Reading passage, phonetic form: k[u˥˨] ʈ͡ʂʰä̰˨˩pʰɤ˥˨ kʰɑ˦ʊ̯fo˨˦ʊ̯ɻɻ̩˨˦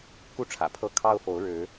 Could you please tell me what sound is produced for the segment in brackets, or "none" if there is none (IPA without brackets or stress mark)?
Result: u˥˨